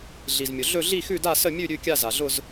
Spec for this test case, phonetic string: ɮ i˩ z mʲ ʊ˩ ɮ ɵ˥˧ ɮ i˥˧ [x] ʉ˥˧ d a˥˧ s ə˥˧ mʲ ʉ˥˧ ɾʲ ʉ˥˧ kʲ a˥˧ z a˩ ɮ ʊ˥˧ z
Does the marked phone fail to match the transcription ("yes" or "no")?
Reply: no